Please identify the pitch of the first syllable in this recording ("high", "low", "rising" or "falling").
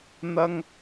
high